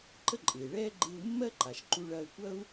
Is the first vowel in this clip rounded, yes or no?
no